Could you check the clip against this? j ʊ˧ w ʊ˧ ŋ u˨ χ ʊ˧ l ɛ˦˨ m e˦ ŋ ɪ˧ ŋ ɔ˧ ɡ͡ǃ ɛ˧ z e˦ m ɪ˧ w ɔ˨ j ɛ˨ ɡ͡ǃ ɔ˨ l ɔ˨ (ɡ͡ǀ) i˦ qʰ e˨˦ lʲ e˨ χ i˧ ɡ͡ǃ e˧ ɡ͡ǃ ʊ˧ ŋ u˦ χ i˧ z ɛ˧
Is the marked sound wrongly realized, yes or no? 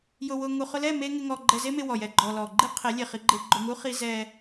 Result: yes